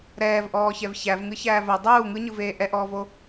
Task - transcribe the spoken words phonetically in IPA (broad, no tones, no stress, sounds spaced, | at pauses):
ɾ ɛː v ʔ ɔː ç ɛ v ç æ v ŋ ɯ ç æː v ɜ dˤ uː ŋ ɯ ɲ ɯ v eː ʔ ɛ ʔ ɔː v o